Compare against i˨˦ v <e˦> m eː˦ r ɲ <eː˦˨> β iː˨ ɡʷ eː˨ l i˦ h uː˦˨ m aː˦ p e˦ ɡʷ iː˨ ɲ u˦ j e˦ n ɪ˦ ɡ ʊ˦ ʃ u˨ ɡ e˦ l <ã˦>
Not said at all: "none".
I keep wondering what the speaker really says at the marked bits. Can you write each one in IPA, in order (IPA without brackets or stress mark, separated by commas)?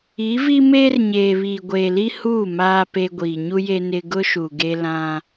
i˦, eː˨, ã˦